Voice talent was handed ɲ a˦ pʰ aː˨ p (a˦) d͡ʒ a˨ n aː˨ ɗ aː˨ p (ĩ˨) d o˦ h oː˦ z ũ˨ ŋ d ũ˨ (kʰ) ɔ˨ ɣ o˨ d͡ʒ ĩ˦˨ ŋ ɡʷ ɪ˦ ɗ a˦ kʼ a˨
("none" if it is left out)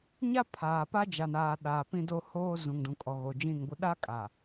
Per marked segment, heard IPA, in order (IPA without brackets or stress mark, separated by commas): a˦, ĩ˦, kʼ